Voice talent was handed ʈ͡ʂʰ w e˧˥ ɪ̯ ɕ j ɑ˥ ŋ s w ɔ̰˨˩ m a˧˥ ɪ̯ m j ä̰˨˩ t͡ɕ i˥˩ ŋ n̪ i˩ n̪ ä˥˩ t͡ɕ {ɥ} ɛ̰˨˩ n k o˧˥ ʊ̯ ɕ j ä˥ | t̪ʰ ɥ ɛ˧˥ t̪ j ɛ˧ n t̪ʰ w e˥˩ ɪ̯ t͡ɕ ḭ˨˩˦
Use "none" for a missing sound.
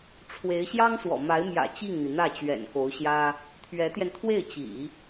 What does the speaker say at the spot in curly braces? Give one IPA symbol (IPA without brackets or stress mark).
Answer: ɥ